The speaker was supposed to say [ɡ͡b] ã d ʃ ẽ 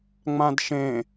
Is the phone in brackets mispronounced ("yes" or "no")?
yes